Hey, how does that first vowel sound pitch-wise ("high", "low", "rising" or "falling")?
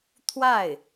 falling